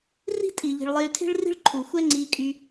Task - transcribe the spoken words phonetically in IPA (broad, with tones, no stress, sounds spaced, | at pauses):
r i̤˦ tʼ iː˩ ʎ i̤˩ ɭ lˠ e˨ y̯ tʰ e̤˥ ɭ r i̤˥ ɭ ǃʰ u˩ xʷ ɛ˥ ŋ͡ǀ iː˨ kʼ y˨